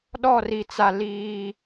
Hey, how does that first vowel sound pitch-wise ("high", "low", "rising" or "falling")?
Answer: falling